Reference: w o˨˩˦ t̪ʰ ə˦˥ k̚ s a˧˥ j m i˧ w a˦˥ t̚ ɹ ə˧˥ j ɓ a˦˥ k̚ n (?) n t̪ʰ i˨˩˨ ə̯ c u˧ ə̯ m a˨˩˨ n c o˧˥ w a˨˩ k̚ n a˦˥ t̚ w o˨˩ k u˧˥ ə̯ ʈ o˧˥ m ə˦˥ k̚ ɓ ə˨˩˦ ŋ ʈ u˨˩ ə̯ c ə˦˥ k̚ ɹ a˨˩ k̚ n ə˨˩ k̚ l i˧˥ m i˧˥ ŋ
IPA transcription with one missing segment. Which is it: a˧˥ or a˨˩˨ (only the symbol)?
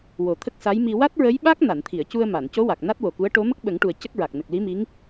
a˨˩˨